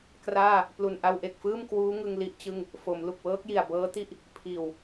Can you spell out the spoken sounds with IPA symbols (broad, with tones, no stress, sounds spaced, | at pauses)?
k r aː˥˩ | p l u˨˩ n ʔ a˧ w ʔ e˨˩ k̚ f ɯː˥˩ m k w uː˦˥ ŋ ɯ˧ ŋ l i˦˥ ʔ t͡ɕ ɯ˥˩ ŋ | f o˩˦ m l u˨˩ k̚ w ɤː˦˥ k̚ j i˨˩ a̯ b ɤː˦˥ t i˥˩ ʔ | pʰ iː˨˩ w